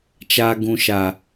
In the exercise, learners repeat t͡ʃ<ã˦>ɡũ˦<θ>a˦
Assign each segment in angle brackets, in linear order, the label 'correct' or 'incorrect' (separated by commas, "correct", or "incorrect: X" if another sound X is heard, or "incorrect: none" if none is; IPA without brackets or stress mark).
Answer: incorrect: a˦, incorrect: ʃ